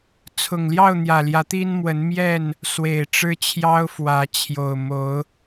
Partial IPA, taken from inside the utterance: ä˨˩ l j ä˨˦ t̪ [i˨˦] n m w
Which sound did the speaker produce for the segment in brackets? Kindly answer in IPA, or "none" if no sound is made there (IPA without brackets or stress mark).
i˦